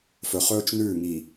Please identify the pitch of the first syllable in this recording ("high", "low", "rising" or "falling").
low